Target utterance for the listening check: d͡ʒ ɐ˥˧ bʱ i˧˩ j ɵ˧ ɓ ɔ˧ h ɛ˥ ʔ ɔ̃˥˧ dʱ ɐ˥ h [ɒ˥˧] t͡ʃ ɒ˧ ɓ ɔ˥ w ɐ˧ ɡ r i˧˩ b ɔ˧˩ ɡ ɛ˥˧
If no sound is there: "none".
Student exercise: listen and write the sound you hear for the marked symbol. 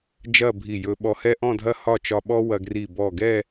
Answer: ɒ˥˧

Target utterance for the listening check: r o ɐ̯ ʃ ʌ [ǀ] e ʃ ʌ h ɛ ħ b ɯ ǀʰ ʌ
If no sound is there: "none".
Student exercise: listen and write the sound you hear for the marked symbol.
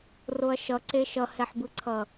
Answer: ǀ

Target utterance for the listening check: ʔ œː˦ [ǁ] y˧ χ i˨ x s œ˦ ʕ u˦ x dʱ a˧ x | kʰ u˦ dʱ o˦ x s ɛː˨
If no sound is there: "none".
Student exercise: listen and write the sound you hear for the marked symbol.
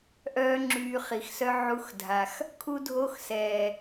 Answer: ŋ͡ǁ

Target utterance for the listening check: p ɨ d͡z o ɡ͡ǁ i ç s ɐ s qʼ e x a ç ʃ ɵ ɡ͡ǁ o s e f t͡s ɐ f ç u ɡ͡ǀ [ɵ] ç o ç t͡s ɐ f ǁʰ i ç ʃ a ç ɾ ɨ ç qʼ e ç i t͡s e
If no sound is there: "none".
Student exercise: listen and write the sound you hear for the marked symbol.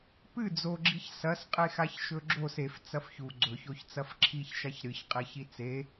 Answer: ɵ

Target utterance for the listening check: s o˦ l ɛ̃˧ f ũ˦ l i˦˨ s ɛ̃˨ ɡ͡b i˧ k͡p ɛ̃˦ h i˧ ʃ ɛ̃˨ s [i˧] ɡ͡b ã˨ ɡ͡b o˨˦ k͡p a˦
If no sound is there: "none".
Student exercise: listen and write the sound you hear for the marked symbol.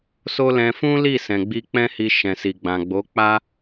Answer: i˨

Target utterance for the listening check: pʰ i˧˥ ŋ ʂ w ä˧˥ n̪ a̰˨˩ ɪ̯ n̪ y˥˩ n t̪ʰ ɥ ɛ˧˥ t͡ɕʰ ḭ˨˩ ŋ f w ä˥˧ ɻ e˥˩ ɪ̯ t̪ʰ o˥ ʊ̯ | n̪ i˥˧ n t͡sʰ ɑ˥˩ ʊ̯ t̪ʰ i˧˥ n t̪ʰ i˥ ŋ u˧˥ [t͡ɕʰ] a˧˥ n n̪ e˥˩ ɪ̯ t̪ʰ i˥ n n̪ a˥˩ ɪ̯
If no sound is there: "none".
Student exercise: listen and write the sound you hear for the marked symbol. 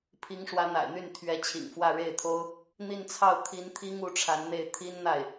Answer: ʈ͡ʂʰ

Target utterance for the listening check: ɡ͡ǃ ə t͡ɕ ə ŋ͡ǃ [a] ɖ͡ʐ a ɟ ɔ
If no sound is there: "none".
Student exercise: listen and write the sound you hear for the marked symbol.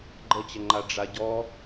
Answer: a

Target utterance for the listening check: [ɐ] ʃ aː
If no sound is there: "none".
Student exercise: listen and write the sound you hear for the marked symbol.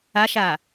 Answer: a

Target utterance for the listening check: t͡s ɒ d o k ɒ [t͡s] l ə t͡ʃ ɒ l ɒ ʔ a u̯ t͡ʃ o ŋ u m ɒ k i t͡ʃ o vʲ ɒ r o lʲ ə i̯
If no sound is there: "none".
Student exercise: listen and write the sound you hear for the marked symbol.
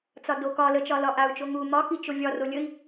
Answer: none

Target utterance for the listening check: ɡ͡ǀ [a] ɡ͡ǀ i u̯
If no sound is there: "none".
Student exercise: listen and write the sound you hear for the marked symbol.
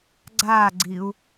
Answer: aː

